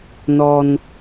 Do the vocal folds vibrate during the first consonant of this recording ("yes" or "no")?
yes